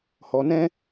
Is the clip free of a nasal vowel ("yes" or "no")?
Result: no